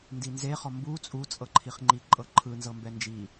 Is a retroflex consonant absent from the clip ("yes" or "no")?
yes